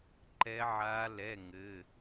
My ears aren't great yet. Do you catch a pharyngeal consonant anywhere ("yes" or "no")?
yes